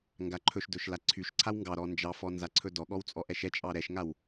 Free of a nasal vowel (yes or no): yes